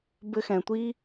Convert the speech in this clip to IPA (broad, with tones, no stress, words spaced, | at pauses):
bɘ˧xɛ̃˨tʷi˦